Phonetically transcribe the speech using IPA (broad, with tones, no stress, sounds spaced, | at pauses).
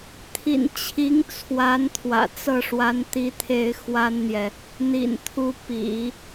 t̪ʰ ḭ˨˩ n t͡ɕʰ i˧˥ ŋ t͡sʰ w a˧˥ n t̪ʰ w ä̰˨˩ t͡s ɤ˥˩ ʂ w a˧˥ n t̪ i˥ t̪ʰ e˥ ɪ̯ x w a˥ n n̪ j ɛ˨ | n̪ ḭ˨˩ n t̪ʰ u˧˥ p ḭ˨˩˦